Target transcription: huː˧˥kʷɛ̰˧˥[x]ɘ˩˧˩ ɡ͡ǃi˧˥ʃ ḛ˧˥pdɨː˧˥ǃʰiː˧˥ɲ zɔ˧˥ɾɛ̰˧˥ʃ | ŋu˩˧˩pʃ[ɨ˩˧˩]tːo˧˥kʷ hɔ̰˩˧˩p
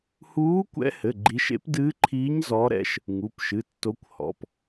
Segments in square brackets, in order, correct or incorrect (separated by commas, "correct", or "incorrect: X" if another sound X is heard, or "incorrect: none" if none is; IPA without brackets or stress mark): incorrect: h, correct